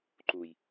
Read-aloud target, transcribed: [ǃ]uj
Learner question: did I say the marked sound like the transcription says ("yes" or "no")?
yes